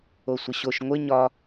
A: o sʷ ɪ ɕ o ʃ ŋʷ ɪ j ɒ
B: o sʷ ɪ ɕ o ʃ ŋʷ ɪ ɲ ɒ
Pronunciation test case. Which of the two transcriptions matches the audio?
B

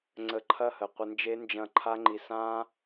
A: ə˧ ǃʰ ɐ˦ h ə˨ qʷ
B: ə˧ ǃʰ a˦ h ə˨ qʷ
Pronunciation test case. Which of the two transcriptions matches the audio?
A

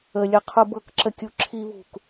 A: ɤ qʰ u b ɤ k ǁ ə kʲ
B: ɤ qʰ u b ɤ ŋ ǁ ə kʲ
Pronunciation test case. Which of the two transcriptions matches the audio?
A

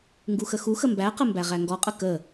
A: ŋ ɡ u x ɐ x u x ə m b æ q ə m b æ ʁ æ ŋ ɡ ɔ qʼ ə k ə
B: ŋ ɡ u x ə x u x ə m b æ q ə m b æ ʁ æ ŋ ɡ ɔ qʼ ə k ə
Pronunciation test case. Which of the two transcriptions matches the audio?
B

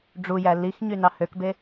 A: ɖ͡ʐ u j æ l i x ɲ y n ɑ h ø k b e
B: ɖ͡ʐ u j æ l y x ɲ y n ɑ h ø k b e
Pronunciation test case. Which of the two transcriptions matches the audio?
A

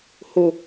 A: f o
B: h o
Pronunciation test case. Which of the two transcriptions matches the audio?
B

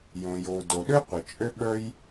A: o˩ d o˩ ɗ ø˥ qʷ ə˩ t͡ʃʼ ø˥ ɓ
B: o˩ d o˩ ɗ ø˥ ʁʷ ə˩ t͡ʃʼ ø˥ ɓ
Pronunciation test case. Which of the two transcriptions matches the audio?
A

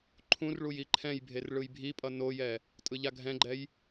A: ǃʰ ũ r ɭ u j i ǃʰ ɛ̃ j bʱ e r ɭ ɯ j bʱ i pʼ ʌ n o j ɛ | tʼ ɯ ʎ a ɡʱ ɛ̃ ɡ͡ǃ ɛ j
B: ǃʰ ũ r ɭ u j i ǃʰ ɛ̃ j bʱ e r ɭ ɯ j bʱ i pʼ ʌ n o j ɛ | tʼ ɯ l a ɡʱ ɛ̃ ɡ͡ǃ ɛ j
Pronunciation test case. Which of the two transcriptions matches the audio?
A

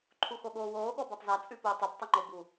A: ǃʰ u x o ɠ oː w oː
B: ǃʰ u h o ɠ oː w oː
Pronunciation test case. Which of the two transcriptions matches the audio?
A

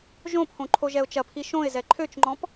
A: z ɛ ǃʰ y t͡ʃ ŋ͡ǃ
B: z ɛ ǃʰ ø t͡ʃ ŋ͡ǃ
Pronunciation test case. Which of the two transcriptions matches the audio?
B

